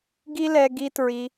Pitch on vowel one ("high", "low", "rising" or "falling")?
high